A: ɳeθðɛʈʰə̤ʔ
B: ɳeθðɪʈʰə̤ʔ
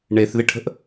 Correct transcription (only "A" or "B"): B